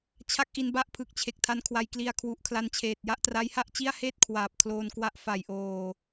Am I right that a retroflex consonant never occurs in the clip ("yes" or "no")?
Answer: yes